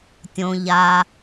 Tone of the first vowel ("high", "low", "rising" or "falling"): low